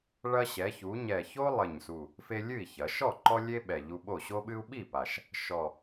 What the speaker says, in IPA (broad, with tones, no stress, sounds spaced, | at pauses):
ɭ ɐ˦ ɕ ɛ˩˧ ç u˩˧ ɲ ɛ˨˩ ç o˦ lˠ ɘ˨˩ ɲ s u˨˩ | f e˦ lʲ ɨ˥˩ i̯ ç ɐ˩˧ ʃ ɔ˥˩ ǃ ɔ˦ lʲ e˦ ɓ ɛ˨˩ ʎ u˦ ɓ o˥˩ ɕ o˦ ɓ ɨ˦ u̯ ɓ i˥˩ p a˨˩ ʃ | ʃ ɔ˨˩